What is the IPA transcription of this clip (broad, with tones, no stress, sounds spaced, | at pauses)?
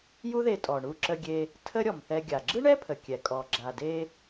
j u˥ ð e˧ tʼ ɔ˩ ɳ u˧ ǁ ə˧ ɡʲ e˧ | tʰ ə˥ ɾʲ ɔ˩ m θ ɛ˧ ɡʲ a˩ ɡ͡ǁ ɯ˥ ɳ ɛ˥ pʰ ə˩ kʲ ɛ˩ kʼ ɔ˩ ɡ͡ǁ a˩ d e˧